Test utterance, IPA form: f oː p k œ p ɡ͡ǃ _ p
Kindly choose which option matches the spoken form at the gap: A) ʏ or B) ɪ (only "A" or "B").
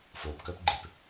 B